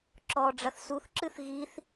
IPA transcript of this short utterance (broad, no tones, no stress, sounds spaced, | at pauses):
ǁ ɔ ɖ͡ʐ ɐ θ s u θ ǁ ɨ θ ɣ i θ